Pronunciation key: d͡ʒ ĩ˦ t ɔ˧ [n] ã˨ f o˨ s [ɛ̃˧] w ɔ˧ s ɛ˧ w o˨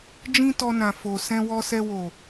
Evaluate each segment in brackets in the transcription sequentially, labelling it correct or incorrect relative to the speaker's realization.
correct, correct

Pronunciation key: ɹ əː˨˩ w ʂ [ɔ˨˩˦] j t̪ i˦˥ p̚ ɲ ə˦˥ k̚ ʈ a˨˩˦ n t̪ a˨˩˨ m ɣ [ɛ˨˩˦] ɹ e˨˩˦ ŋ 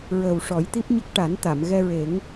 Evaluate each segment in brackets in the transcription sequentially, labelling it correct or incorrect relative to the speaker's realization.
correct, incorrect: ɛ˧

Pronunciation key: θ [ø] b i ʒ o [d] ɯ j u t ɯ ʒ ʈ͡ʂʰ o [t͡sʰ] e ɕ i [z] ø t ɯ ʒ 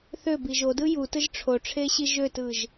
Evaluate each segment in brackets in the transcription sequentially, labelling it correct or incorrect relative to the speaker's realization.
correct, correct, incorrect: ʈ͡ʂʰ, incorrect: ʒ

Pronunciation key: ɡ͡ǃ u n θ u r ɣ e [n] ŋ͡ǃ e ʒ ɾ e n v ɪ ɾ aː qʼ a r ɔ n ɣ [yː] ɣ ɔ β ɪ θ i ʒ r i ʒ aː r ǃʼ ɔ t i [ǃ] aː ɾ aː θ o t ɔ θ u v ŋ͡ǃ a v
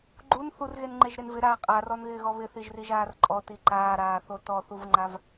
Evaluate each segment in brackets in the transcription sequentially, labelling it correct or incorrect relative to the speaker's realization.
correct, incorrect: ɪː, correct

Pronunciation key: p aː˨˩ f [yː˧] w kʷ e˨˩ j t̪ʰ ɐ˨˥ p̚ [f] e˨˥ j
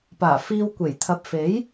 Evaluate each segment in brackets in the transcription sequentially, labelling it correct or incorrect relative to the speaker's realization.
incorrect: iː˧, correct

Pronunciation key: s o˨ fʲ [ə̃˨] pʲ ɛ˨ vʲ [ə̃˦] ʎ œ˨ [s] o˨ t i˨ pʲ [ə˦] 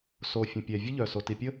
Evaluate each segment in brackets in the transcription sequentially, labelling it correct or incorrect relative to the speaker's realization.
correct, incorrect: ə˦, correct, correct

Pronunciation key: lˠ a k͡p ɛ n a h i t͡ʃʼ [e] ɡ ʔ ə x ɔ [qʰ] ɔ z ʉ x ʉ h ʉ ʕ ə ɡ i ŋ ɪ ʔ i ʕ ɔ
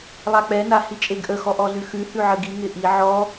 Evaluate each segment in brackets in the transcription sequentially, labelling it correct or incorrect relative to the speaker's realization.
correct, incorrect: ʔ

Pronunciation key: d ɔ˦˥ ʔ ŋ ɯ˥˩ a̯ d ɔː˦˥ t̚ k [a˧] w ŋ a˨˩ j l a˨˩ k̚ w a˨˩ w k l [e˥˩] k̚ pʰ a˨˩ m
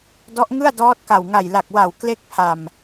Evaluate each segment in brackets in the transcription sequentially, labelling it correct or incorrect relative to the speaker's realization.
incorrect: a˨˩, correct

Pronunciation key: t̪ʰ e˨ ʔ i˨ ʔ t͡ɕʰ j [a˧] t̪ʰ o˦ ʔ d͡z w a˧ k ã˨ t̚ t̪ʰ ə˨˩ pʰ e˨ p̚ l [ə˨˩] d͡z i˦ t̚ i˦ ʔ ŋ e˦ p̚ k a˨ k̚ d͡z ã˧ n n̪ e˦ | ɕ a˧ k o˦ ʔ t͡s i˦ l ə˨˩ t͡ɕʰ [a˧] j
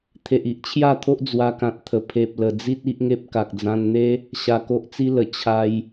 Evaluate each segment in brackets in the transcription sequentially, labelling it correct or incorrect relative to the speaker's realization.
incorrect: a˥˧, correct, correct

